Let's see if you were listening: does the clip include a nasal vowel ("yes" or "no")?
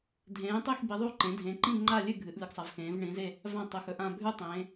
yes